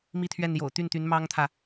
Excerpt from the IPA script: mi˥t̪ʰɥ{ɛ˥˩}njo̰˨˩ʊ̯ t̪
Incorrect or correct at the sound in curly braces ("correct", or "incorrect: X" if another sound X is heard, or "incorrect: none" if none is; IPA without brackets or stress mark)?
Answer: correct